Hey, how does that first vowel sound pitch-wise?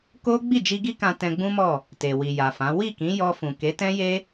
high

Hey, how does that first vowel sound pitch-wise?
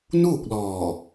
falling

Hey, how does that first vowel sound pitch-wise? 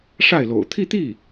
falling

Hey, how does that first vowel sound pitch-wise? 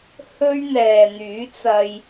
high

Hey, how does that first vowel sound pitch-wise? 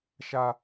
high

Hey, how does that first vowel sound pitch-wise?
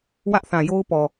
high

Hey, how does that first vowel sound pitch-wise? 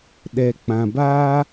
low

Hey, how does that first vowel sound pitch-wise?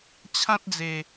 high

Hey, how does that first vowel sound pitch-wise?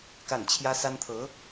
falling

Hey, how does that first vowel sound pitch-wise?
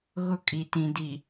high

